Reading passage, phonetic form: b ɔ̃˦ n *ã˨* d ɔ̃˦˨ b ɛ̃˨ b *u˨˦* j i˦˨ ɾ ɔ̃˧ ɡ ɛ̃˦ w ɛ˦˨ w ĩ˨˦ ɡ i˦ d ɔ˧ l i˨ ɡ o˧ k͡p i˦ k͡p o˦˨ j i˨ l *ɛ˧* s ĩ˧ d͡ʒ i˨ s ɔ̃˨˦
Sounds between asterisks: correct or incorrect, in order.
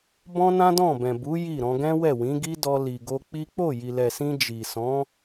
incorrect: ã˦, correct, incorrect: ɛ˨

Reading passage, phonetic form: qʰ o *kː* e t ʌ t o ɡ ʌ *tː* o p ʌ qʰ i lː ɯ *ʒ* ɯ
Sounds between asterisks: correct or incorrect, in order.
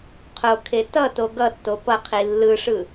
incorrect: kʰ, correct, incorrect: ʂ

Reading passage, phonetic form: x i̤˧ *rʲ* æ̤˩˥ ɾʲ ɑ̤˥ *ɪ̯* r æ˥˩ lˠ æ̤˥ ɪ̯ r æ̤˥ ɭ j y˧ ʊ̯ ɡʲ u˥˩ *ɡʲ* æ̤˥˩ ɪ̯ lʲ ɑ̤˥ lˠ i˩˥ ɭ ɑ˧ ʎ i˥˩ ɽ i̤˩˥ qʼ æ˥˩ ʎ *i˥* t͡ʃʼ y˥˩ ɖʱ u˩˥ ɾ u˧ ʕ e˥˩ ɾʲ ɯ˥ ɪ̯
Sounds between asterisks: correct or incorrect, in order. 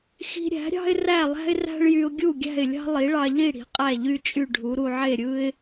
incorrect: ɾʲ, correct, correct, incorrect: y˥

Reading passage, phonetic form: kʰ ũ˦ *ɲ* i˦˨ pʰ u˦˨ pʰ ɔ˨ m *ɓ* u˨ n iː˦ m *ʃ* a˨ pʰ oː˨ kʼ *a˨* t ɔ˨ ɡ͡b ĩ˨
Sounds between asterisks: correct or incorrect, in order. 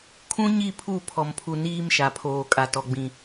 correct, incorrect: pʰ, correct, correct

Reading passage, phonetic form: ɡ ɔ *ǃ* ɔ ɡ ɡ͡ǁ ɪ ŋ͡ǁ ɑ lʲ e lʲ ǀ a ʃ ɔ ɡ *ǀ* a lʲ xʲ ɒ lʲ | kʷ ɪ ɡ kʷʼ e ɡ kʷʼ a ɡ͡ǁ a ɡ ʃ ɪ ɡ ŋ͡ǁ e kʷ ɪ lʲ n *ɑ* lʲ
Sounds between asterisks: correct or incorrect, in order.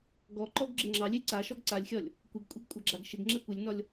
correct, correct, incorrect: ɒ

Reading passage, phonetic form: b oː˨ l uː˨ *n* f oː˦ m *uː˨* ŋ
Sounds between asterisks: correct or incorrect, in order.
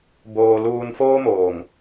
correct, incorrect: oː˨

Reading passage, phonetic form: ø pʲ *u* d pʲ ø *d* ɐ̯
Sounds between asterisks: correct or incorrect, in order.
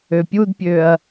correct, incorrect: none

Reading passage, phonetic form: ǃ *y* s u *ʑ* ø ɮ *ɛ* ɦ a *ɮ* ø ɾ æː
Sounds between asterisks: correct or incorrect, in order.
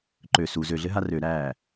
incorrect: ø, incorrect: z, incorrect: ɘ, incorrect: r

